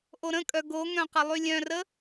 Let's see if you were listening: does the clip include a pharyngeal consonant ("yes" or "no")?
no